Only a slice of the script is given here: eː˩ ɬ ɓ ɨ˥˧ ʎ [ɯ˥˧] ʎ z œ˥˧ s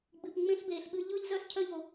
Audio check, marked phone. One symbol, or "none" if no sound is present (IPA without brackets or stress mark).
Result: ɯ˥˧